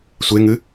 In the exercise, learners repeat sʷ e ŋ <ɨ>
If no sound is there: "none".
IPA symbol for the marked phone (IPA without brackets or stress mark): ɨ